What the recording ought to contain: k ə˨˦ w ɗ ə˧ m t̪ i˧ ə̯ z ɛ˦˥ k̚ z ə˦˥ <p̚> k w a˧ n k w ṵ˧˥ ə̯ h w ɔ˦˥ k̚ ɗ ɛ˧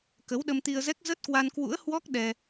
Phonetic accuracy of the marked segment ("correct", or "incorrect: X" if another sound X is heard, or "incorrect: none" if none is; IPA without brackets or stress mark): incorrect: t̚